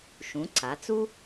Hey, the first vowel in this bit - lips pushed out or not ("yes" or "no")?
yes